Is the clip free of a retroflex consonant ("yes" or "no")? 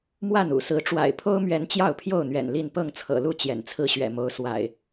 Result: no